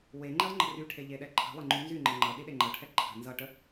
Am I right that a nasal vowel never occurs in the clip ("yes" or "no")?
yes